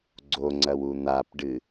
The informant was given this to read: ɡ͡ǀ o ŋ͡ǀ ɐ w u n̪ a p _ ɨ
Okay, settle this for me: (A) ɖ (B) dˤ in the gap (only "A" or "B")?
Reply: A